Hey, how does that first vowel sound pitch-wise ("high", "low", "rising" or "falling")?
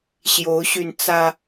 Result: rising